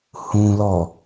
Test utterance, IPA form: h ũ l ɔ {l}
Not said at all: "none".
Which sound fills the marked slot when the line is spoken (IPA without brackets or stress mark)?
none